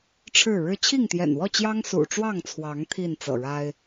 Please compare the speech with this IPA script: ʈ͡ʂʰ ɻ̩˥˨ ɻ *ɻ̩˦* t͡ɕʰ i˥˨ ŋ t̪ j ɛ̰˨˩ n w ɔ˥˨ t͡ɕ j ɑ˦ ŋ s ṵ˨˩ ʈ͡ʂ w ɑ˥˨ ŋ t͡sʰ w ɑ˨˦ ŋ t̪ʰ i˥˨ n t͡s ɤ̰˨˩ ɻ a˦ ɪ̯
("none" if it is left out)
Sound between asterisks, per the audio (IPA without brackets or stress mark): ɻ̩˦